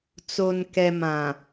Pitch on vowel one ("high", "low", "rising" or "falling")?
low